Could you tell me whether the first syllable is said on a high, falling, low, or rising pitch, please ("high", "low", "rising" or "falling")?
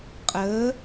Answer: rising